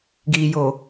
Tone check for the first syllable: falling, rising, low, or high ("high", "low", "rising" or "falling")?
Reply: low